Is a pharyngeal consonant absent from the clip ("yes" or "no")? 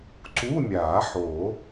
no